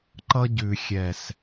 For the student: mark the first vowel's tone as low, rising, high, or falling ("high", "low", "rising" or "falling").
high